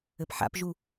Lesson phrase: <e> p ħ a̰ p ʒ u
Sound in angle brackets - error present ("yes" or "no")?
yes